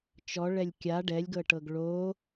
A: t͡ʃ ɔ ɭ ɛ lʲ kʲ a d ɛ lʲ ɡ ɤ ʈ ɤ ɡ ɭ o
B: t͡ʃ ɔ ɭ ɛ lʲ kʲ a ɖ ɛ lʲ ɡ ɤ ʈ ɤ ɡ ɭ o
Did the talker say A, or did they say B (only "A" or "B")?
B